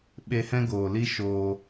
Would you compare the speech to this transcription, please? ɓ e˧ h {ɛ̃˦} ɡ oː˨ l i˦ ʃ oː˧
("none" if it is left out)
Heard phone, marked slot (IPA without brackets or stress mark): ɛ̃˦